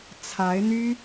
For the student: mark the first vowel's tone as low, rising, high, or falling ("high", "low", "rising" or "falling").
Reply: rising